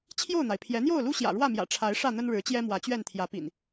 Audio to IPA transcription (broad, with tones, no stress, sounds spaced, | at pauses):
t͡ɕʰ j o˥˨ ʊ̯ n̪ a˩ ɪ̯ pʰ j ɛ˨˦ n̪ j o˥˨ ʊ̯ l u˦ ɕ j ä̰˨˩ ɻ w ä˥˨ m j ä̰˨˩ ʈ͡ʂʰ a˨˦ ɪ̯ ʂ ä˥˨ n̪ ə˦ n ɻ ɻ̩˨˦ t͡ɕ j ɛ˦ m w ä˨˦ t͡ɕ ɥ ɛ˥˨ n t̪ʰ j ä˨˦ p ḭ˨˩ n